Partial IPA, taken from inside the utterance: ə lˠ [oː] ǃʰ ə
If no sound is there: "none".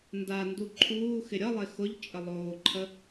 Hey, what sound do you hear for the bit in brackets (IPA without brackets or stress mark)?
oː